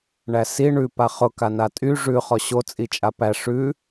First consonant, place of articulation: retroflex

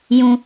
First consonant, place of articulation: palatal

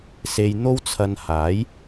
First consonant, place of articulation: alveolar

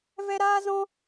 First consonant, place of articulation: labial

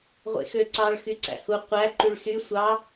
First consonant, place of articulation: uvular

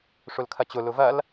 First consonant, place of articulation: retroflex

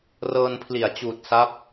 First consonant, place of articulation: alveolar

